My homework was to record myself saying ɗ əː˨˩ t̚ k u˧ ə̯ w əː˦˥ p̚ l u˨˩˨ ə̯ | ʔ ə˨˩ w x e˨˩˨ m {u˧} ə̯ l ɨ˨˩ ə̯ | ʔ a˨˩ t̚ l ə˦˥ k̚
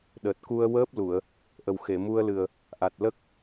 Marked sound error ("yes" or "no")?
no